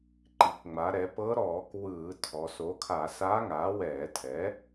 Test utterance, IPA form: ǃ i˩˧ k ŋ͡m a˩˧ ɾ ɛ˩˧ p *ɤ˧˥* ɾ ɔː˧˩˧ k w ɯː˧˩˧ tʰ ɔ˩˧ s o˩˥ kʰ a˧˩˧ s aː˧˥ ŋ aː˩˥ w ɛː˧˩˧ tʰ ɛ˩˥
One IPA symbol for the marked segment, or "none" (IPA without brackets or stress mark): ɤ˧˥